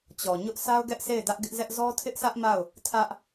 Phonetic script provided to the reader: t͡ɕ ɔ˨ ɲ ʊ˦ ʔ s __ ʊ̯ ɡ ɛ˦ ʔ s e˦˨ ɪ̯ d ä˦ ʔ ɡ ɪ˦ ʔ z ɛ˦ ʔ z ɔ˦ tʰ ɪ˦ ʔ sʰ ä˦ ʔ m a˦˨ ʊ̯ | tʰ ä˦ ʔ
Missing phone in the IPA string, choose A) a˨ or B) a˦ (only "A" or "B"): B